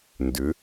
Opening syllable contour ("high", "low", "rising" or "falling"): rising